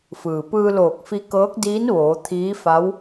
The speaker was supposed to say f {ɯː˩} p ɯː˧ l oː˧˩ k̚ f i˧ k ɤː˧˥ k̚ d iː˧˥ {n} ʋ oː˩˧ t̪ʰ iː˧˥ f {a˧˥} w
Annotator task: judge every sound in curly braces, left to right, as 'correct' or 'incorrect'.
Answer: correct, correct, correct

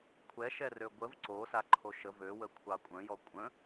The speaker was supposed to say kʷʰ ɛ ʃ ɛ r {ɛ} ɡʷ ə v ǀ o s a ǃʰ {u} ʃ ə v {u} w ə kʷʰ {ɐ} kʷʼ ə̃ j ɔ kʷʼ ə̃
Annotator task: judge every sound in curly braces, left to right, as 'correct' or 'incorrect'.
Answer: incorrect: ø, incorrect: o, incorrect: ø, incorrect: ɑ

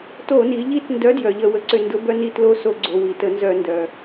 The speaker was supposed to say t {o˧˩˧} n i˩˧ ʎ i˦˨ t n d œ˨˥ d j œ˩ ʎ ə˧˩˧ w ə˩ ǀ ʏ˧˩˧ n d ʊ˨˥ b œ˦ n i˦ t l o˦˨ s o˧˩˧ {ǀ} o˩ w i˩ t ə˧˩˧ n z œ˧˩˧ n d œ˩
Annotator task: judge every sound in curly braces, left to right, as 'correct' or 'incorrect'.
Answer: correct, incorrect: ɡ͡ǀ

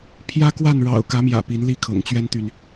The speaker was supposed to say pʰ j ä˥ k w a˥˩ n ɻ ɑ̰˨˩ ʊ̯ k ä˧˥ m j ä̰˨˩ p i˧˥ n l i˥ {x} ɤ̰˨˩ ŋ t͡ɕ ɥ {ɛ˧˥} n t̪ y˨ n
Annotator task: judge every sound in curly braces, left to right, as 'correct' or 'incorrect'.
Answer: incorrect: kʰ, incorrect: ɛ˥

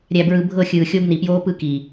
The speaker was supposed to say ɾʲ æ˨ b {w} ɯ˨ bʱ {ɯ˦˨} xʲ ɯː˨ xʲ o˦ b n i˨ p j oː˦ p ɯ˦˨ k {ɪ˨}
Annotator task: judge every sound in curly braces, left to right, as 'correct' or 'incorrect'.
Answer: incorrect: ɹ, incorrect: ɤ˦˨, incorrect: i˨

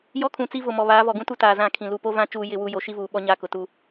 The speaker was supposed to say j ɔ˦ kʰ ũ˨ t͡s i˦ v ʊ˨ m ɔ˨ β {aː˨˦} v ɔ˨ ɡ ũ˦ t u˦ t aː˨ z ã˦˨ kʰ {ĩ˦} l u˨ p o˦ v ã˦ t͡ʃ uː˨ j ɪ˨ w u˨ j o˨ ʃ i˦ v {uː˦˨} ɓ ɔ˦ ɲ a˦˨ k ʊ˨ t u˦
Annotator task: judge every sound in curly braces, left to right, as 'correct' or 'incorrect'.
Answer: correct, incorrect: ĩ˨, incorrect: uː˨

